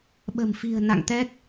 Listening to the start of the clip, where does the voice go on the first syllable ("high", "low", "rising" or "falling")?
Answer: low